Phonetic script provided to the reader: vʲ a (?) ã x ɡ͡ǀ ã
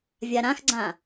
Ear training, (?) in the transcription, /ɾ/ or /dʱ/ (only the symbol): ɾ